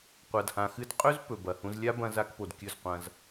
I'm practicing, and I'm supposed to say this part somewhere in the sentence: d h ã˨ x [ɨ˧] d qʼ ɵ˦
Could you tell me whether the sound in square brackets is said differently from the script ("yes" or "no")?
no